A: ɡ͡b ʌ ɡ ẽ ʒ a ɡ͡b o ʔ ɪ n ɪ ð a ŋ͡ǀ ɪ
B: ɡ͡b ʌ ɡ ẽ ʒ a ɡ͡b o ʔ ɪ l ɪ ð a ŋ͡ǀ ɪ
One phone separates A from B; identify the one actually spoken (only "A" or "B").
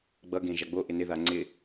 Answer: A